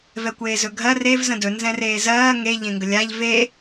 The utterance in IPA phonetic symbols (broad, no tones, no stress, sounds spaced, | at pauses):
v ɛ kʷ eː z ɵ ɡʱ ɜ r e v z ə̃ d ɵ n z ɛ̃ r eː z ɜː ŋ e ʎ ẽ ŋ ɡ ə lʲ a ʎ v e